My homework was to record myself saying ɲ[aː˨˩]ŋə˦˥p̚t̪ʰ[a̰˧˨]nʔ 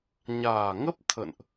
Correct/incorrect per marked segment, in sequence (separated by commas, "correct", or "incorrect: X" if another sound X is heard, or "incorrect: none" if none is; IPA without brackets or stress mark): correct, incorrect: ə̰˧˨